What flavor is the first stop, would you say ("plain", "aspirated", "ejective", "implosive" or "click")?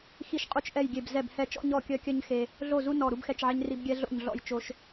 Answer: ejective